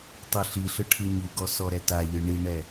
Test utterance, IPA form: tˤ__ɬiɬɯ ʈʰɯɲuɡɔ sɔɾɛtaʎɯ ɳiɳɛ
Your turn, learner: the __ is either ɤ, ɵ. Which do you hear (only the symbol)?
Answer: ɤ